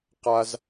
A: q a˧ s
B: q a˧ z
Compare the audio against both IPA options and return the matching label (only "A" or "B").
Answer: B